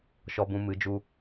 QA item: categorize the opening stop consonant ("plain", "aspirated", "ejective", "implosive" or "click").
plain